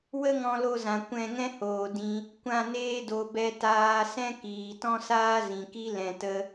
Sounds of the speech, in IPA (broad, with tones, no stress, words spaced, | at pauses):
wə˦ŋɔ̃˧lo˧zã˨ kʷɛ̃˦˨ ŋɛ̃˦hoː˨ dĩ˧ | kʷã˦˨neː˦do˨˦ bɛ˧taː˧ sɛ̃˦kiː˨ tɔ̃˦saː˦zĩ˨ki˦ lɛ̃˧tə˦